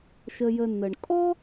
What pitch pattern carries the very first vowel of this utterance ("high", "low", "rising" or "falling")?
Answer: low